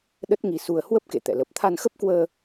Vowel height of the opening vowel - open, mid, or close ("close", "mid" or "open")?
mid